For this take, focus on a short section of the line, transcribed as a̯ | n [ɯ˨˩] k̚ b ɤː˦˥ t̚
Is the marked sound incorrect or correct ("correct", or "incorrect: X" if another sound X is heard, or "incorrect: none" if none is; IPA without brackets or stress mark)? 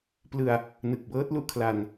correct